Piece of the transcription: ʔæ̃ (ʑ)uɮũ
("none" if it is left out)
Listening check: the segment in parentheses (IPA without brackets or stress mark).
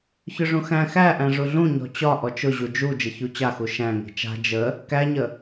ʐ